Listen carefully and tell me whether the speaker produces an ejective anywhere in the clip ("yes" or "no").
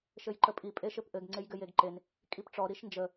yes